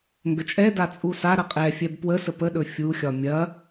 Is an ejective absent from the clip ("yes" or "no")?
no